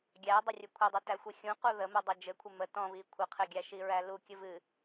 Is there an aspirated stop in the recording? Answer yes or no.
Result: yes